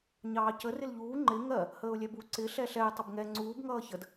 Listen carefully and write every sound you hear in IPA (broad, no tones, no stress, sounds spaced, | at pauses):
ɲ ɑː c ə r ɪ l ʎ uː ŋ͡ǃ ɪ ŋ ɜ | h əː ʊ̯ lʲ ɛ b u ǀ ɪ ɬ ɛ ɬ ɛ ɪ̯ tˤ ɪ b ŋ ɛ ŋ͡ǀ uː b ŋ ʌː ç ə d